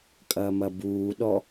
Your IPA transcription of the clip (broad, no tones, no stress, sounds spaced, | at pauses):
kʼ ɐː m ɐ b uː ɗ ɔ